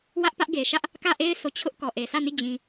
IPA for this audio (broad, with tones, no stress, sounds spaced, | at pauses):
w ä˦ ʔ p ä˦ ʔ ɡ e˨ ʃ ä˦ ʔ | k ä˦˨ ʔ e˦ ɪ̯ s o˦˨ t͡ɕʰ ʊ˦ ʔ k ɔ˨ ʔ e˨ s ä˦˨ n i˦˨ d͡ʑ ĩ˦